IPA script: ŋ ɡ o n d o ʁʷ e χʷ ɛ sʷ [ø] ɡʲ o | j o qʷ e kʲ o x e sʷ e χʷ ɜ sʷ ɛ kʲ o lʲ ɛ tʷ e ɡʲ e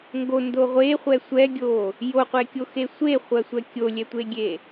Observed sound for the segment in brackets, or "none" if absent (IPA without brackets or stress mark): ɛ